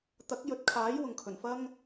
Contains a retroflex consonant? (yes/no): no